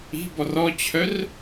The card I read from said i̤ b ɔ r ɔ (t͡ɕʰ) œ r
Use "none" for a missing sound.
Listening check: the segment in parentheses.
t͡ɕʰ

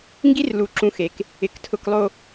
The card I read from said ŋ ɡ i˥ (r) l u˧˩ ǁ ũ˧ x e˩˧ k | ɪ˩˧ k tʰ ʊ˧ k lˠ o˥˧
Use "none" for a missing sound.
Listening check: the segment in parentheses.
r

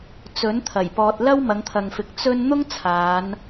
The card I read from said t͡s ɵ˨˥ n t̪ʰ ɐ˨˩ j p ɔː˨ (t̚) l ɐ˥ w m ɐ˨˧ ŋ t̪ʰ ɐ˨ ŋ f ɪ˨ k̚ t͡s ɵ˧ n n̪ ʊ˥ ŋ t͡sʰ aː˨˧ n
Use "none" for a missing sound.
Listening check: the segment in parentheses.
t̚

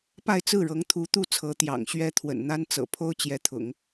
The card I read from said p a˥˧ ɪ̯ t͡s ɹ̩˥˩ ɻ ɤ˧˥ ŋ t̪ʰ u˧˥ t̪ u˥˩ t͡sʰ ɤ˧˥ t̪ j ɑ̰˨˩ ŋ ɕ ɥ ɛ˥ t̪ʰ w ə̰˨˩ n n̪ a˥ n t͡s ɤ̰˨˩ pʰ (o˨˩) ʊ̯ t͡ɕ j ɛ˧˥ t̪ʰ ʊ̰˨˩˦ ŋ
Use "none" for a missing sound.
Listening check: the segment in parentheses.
o˥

